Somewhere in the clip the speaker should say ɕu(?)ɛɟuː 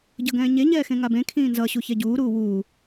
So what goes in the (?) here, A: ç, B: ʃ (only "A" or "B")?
A